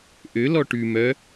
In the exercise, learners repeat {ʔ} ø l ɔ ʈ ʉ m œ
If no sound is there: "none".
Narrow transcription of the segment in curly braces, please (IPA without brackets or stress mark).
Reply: ʔ